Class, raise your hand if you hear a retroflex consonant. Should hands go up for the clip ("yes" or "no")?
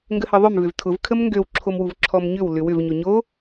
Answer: no